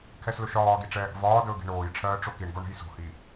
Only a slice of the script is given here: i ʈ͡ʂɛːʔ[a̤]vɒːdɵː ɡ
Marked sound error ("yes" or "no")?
yes